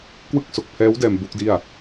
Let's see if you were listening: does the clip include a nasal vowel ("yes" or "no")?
no